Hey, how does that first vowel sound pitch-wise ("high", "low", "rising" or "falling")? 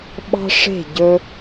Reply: high